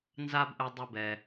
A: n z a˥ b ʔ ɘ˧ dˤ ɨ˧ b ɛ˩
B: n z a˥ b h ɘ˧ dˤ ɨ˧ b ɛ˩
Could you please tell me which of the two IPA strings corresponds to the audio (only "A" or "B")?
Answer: A